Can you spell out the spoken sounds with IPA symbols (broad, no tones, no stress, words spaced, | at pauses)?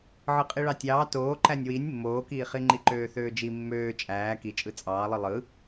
ʕɯqʼiɭɑtʲɑː toːǃænʲ winʲ mːoːkiːχi ŋ͡ǃiǃøːθøːd͡ʒi mːøː t͡ʃʼæː kit͡ʃʼɯ t͡sʼɑːlˠɯ lˠɯ